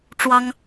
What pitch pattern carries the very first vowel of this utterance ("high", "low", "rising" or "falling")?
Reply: high